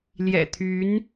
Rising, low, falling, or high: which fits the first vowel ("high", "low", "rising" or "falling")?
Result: low